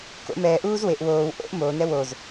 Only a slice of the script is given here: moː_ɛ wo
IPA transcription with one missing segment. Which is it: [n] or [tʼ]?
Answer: n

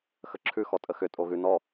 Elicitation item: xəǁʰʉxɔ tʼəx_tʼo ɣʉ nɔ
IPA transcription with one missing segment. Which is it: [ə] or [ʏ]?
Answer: ʏ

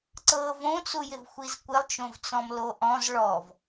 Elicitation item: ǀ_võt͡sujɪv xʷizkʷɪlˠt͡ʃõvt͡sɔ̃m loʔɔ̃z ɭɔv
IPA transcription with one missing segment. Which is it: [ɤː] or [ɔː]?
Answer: ɤː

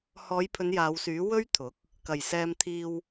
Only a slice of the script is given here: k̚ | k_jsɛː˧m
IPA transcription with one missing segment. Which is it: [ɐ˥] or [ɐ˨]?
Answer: ɐ˨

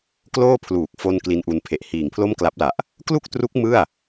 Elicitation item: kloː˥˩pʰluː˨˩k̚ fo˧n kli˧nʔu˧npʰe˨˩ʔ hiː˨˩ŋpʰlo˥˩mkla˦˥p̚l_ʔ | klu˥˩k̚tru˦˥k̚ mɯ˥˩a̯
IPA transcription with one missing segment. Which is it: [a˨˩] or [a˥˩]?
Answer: a˨˩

